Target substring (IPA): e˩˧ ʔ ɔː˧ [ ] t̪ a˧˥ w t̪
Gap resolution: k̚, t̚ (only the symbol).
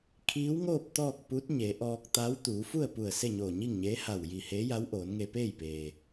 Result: k̚